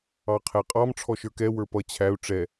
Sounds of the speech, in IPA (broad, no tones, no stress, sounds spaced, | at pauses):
ɑ qʰ ɛ qʼ ɑ m ʈ͡ʂʰ ɔ ʃ ə˞ k ɛ w ə˞ p ʌ t͡ɕʰ æ u̯ ʈ͡ʂ ɛ